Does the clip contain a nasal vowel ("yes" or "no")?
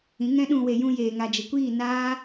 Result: yes